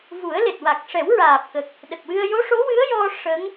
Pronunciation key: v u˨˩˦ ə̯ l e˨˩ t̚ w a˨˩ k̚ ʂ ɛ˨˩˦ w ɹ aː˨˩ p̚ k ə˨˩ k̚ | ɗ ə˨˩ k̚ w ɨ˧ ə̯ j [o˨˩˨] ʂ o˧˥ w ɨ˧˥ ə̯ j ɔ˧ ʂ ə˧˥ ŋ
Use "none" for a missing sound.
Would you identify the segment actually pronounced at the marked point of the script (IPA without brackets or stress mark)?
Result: o˧˥